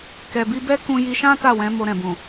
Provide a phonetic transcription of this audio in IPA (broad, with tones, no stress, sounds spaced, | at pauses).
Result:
k ɛ˨ b i˧ b ɛ˦ k ũ˧ j i˧ ʃ ã˦ t a˦˨ w ɛ̃˨˦ m o˧ ɾ ɛ̃˨ b ũ˨